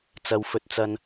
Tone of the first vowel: low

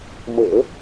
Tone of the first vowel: low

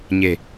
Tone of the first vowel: low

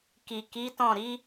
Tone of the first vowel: low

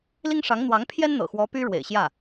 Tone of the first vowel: high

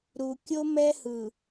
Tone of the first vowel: low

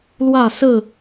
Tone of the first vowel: falling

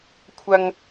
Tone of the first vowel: high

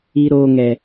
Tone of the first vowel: high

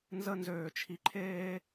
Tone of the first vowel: high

